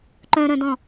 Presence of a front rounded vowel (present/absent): present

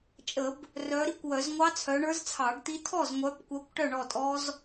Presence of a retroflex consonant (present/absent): present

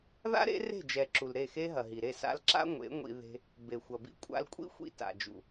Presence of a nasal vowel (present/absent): absent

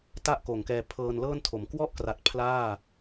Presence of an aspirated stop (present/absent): present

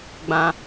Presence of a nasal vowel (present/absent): present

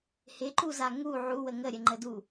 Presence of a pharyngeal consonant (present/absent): present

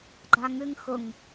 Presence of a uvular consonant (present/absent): absent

